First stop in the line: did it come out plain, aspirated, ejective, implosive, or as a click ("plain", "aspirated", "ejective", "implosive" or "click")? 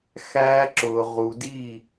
click